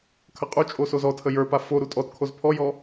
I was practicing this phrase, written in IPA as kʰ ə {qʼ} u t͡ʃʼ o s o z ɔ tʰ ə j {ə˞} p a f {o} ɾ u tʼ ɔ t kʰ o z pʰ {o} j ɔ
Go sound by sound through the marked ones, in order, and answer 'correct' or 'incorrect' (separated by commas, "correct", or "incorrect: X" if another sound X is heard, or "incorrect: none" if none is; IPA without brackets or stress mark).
correct, correct, correct, incorrect: ɔ